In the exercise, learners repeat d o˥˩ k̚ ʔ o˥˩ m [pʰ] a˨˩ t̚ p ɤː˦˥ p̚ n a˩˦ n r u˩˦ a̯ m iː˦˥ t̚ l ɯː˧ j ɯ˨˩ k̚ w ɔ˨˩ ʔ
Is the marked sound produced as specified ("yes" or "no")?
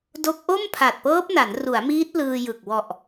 yes